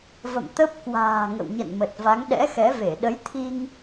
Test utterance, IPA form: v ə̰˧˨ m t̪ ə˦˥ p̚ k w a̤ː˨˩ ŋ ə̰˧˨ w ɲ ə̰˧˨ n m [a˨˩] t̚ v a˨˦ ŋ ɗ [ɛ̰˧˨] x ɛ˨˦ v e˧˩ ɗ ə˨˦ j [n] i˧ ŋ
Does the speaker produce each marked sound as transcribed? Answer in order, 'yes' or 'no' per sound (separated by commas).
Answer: no, no, no